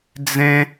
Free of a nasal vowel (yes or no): no